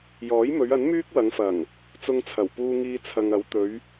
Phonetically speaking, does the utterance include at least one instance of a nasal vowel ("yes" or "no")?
no